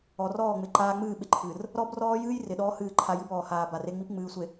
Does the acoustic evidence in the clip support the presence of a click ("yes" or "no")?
yes